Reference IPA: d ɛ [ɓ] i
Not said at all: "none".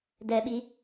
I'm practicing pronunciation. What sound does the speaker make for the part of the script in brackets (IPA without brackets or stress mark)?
ɓ